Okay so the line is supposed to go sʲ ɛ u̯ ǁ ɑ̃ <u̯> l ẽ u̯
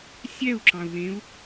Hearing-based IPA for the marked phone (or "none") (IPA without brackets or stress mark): u̯